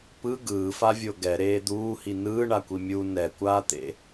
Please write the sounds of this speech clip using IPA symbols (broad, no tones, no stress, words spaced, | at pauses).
pɯ ɡɯːfavʲo ɡɛɾeː d̪uːhi nɯːɳakʷi mʲu nɛkʷaːt̪ḛ